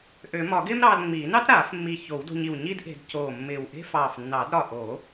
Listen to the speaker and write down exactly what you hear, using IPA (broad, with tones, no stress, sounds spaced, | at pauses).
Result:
ʔ ø˨˩˦ m ɒ˨˩˦ ɡ ɪː˥ m ɾ ɑː˧ l ŋ͡m iː˨˩˦ n ɑ˥ t ɾ aː˨˩˦ f mː i˧˩ ç o˨˩˦ w d o̤˧ ɲ i˧˩ w ɲ i˥ d ʔ e̤˧ d c oː˧˩ mː ɪː˧˩ w ʔ e̤˥ f ɑː˧˩ f nː ɑ˨˩˦ d ɾ ɒ˧˩ ʔ o˨˩˦